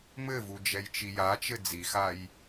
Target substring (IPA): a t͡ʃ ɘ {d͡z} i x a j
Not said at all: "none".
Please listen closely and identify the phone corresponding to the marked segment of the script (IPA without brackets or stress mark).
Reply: d͡z